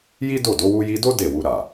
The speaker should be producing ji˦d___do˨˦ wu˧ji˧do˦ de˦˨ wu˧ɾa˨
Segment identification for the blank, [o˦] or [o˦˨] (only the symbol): o˦˨